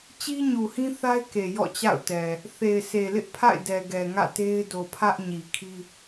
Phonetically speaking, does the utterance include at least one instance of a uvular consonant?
no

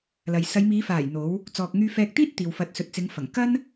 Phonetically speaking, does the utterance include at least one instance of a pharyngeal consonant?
no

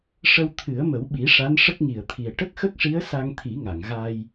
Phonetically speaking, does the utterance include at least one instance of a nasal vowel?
no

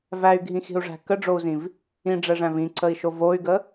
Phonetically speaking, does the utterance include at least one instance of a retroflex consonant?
yes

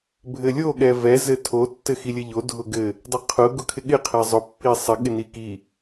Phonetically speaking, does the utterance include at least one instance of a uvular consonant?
yes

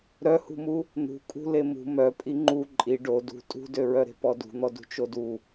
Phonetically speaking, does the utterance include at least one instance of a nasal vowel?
no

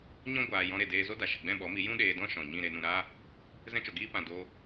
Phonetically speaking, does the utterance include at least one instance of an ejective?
no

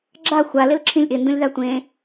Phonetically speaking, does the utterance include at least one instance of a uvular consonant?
no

